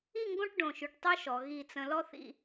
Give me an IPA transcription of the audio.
i˥˧ŋɡõ˥˧ʈ ɖõ˧˩ʃy˧ʈtˤy˥ʃɔ˩˧ ɣi˧˩t͡sə̃˧ lɔ˥θḭ˥˧

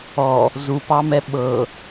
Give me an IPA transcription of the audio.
ɔ | zupɑmɛ ɓɤ

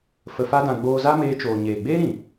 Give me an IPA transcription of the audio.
fə˧fa˦dã˧ ɡ͡boː˧za˦meː˧t͡ʃoː˨ ɲeː˨ɡ͡beː˦ɾĩ˨

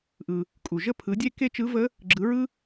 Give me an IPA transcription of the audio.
ʔɯ˩ | kʼu˩ʒə˥˧pʰɯ˩˥dʲe˥˧ ke˥˧t͡ʃɯ˧˥və˧˥ | ɡ͡ǁɯ˩˥ɹɯ˥

